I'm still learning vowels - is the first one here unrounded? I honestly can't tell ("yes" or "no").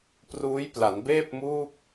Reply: no